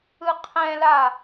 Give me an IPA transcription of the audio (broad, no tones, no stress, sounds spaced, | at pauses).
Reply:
ɯ qʰ ɛ̃ l a